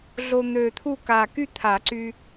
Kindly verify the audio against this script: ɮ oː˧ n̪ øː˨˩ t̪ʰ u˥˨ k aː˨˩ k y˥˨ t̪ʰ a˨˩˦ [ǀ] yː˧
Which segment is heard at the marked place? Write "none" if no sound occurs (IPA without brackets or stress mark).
ǀ